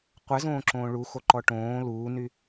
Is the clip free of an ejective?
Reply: yes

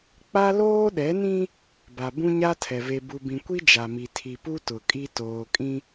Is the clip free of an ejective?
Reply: no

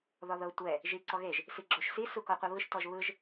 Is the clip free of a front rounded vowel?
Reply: yes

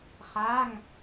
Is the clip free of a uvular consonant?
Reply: no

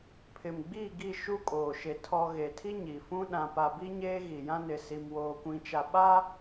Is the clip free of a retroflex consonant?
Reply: yes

